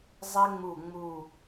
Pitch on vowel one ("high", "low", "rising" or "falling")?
high